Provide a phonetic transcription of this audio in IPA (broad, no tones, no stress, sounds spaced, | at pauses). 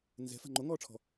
n z ɛ̤ f a̤ ŋ͡ǃ o ŋ ɔː ʈ͡ʂʰ ɔ̤